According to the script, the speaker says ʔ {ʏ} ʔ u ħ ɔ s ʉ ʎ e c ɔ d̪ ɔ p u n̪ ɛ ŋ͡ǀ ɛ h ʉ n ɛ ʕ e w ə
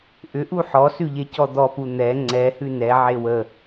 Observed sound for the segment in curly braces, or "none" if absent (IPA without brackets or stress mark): ʏ